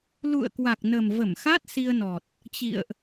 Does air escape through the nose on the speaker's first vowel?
no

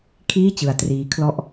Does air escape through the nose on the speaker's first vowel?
no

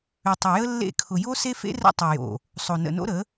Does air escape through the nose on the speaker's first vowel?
no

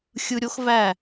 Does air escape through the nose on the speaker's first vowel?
no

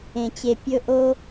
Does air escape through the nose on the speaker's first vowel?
yes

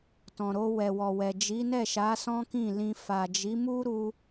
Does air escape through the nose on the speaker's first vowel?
yes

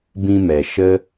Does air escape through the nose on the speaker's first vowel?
yes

